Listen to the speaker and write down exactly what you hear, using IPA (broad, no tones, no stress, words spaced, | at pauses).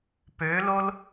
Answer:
pølol